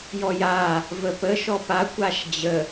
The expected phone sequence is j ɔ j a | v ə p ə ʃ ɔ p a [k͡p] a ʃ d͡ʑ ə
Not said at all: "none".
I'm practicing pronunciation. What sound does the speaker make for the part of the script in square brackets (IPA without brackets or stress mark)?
kʷ